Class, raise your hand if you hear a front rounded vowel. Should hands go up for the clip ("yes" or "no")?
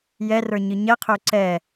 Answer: yes